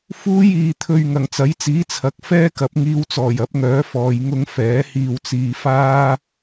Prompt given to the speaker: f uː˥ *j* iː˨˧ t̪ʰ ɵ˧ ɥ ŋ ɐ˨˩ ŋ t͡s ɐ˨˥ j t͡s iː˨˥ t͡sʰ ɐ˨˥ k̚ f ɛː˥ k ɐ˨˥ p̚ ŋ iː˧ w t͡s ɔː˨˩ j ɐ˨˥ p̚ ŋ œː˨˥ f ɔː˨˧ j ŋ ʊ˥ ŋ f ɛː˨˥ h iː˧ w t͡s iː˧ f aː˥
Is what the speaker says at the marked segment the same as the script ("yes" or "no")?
yes